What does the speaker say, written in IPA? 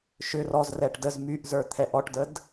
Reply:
ʃ ʏ r ɔ z r ɛ ʈ d ə z m y ʔ z ə˞ t̪ʰ ɛ ʔ ɔ ʈ d ə d

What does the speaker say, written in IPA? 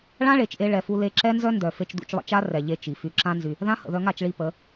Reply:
ɭ ã˦ ɭ e˨ t͡ʃ ʔ e˧ ɭ ɛ˨ f u˧ l e˧ ǁ ɛ˦ n z œ˦ n d œ˨ f e˧ t͡ʃ d ṵ˧ t͡ʃ lˠ ə̰˧ t͡ʃ a˦ r ɛ˨ ʎ e˧ t͡ʃ i˨ f y˧ ǁ ã˦ n z y˧ | ð ã˦ h ə̰˨ ð œ˧ ŋ a˦˨ t͡ʃ ɭ i˧ p ə˨˦

